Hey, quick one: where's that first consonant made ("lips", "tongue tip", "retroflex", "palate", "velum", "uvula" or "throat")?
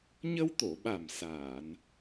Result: palate